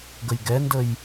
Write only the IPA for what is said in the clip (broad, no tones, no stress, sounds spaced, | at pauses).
ɡ ə j ɡ ɛ n d ə j